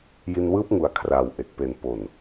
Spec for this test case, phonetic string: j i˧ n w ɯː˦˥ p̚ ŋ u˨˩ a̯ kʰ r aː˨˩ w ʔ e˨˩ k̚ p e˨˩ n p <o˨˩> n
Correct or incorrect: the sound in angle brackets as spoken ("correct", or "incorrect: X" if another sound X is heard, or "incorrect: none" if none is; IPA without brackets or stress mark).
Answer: correct